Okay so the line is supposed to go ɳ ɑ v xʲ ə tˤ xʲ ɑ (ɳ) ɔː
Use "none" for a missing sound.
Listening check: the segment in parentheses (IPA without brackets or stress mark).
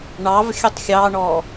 ɳ